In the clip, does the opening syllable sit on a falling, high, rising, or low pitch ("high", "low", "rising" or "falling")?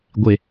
low